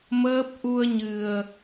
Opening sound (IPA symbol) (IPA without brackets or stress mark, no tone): m